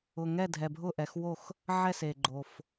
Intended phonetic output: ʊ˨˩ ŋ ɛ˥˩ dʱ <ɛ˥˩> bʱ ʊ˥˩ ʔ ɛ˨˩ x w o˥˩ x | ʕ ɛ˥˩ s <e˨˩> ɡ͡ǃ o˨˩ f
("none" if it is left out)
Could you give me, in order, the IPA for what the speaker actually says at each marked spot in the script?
ɛ˨˩, e˨˩

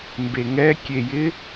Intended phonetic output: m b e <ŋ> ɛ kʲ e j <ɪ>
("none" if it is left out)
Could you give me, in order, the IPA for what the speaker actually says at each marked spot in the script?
ŋ, ɪ

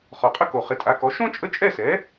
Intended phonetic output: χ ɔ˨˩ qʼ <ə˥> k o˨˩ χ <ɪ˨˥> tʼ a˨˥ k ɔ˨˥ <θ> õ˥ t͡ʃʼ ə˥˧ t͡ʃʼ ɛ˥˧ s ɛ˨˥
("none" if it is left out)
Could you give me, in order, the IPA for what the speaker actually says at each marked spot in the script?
ə˥, ɪ˨˥, ʃ

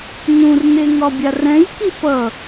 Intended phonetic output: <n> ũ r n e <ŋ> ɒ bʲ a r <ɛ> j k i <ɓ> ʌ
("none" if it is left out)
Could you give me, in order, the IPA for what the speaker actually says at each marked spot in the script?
n, ŋ, ɛ̃, p

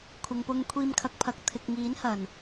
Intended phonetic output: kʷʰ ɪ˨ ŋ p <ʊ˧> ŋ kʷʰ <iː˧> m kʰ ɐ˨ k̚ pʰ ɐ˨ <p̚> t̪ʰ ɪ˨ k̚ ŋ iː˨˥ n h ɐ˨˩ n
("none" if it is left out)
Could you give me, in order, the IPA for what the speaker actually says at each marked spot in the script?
ʊ˧, iː˧, k̚

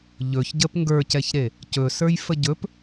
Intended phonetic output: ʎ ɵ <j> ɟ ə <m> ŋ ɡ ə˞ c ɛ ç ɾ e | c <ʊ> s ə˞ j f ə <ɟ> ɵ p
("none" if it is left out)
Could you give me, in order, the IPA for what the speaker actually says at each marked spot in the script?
ç, p, ɵ, ɟ

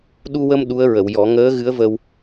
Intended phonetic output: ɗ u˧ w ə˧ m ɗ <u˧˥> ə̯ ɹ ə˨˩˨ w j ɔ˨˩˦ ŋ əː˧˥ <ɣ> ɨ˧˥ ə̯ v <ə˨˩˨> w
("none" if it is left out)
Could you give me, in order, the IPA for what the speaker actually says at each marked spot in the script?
u˧˥, ɣ, ə˧

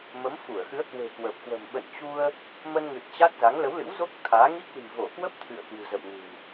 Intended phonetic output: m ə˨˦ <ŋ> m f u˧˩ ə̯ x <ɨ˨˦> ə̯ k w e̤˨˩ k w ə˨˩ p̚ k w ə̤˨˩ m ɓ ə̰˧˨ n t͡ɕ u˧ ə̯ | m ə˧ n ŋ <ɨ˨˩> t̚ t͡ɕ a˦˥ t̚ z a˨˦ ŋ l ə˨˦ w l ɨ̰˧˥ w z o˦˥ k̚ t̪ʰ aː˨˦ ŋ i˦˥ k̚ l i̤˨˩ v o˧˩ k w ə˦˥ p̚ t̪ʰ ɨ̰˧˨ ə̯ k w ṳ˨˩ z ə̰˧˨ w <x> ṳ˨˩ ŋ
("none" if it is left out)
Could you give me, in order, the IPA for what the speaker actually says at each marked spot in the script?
none, ɨ˨˦, ɨ˨˩, ŋ

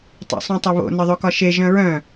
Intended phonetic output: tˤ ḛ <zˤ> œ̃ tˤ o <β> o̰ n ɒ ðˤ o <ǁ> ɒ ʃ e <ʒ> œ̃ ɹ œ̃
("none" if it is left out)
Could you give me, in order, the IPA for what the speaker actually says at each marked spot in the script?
sˤ, β, k, ʒ

